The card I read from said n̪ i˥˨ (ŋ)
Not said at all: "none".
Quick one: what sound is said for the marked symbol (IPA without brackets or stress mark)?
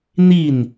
n